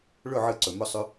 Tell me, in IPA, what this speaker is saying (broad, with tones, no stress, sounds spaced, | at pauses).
ɭ ɵ˦˨ ʕ ɨ˧ ǀ ɵ˨ m ɵ˧ sˤ ʉ˧